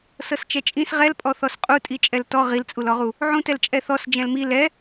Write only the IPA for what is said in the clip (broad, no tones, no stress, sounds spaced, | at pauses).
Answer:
s ɤ s t͡ʃ ɛ t͡ʃʼ ĩ s ʁ ɛ l pʼ ɔ θ ɔ s qʼ u tʼ i t͡ʃʼ ɛ l t ɔ ʁ i l t͡sʼ u l ɔ ʁ u | ʕ ũ t ɛ l t͡ʃʼ ɛ θ ɔ s d͡ʒ ɛ̃ l m i l ɛ